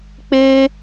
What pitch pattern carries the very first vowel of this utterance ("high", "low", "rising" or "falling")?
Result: high